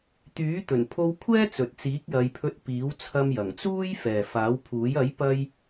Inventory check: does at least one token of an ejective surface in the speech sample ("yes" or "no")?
no